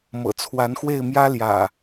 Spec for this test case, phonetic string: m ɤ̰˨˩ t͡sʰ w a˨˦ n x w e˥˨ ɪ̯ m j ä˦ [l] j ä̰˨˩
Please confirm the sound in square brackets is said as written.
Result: yes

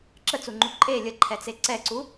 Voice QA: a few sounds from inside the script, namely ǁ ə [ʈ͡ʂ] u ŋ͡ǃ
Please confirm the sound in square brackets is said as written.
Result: no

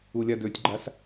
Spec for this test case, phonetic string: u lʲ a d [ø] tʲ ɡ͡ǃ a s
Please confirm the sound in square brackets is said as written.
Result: yes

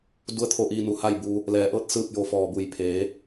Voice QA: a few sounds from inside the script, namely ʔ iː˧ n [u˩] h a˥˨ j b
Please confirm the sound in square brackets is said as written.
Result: yes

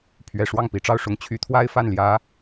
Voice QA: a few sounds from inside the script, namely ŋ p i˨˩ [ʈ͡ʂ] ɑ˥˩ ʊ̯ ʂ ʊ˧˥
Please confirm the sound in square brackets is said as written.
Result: yes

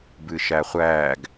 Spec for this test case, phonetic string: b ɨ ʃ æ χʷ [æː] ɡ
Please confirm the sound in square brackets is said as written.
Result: yes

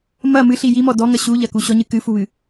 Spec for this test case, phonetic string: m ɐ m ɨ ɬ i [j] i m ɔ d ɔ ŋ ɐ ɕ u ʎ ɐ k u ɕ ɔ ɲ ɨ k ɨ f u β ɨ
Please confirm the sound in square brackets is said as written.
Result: yes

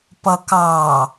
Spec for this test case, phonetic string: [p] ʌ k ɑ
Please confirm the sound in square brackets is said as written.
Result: yes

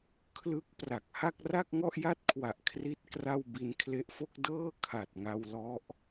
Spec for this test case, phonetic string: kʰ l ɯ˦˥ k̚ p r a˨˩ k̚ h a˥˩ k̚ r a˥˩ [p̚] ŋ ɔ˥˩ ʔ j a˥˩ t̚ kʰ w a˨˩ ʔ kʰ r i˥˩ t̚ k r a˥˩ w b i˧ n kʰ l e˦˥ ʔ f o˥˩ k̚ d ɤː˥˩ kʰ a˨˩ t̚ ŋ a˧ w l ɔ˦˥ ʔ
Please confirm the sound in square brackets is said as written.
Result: no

